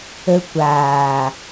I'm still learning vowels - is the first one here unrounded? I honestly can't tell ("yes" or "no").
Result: yes